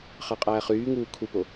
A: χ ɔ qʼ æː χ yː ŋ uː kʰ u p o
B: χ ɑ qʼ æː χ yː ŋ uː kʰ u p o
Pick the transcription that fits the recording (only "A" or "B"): B